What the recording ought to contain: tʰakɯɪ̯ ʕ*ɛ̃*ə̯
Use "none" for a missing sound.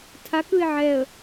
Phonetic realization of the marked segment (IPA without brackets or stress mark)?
ɛ